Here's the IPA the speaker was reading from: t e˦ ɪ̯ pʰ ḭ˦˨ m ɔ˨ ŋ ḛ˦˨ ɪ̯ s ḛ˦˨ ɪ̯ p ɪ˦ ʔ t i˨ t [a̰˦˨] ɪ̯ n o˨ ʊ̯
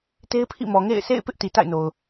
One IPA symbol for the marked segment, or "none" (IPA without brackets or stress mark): a̰˦˨